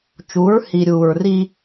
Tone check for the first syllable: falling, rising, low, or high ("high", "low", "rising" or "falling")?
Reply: rising